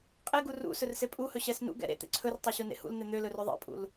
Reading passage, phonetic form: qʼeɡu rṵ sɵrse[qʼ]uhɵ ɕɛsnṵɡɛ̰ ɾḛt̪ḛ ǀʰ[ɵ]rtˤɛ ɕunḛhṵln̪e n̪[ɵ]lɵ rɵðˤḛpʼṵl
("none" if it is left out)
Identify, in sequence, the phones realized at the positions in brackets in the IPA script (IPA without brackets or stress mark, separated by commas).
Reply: pʼ, ɵ, ø